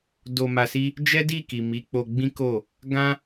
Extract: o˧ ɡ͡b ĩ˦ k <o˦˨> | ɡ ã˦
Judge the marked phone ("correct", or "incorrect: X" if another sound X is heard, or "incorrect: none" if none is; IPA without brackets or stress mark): correct